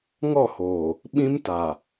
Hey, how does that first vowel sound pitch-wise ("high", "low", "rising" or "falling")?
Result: falling